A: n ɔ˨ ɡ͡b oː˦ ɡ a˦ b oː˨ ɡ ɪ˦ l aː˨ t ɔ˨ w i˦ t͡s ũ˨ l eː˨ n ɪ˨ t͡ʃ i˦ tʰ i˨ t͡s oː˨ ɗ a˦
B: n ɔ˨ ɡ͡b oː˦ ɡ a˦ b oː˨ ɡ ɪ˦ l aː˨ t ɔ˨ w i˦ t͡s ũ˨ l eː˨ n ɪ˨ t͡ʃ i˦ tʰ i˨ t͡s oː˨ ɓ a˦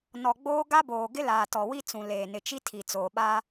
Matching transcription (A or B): B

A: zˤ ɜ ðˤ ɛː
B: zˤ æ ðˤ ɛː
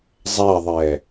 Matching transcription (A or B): B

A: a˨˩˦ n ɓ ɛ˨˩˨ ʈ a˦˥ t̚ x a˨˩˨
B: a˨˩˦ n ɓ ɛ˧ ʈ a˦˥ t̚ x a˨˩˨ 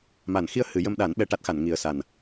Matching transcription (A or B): B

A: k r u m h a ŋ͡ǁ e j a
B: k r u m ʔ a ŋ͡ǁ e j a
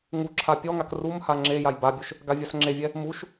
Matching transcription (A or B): A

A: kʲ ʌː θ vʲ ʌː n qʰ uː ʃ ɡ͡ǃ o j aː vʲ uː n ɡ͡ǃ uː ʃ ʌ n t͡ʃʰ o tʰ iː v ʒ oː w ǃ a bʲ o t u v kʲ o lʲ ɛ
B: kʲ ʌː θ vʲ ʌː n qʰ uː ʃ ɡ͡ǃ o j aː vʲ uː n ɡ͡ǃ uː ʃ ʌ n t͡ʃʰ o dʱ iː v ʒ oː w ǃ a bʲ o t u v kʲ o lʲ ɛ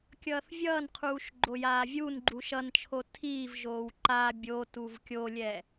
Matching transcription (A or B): A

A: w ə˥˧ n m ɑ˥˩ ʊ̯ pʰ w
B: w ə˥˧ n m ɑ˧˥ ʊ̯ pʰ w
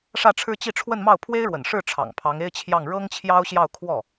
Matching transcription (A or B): A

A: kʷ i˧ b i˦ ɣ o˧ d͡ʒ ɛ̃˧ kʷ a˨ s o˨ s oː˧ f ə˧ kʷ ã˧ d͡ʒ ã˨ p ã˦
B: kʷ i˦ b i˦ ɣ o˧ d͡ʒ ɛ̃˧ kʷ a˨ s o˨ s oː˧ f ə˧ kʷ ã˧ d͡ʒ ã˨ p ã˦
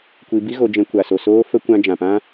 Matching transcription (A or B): A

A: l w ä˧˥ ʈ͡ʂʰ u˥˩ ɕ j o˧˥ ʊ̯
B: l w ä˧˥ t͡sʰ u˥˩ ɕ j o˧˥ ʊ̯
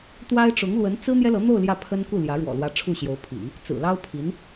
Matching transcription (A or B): A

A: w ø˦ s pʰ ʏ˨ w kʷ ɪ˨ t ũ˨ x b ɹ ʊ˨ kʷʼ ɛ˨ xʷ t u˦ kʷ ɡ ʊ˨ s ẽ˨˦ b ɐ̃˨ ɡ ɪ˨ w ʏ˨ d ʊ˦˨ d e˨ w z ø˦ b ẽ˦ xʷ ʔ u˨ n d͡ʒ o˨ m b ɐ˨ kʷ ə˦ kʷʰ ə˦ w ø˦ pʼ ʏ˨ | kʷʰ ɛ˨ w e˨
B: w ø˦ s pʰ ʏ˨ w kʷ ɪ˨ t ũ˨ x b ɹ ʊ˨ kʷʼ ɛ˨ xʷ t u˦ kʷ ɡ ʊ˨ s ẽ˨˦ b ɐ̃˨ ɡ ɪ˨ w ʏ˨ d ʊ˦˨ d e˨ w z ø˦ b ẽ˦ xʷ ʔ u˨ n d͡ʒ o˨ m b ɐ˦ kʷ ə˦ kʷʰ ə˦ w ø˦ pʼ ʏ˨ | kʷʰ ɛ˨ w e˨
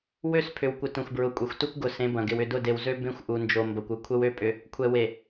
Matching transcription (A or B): A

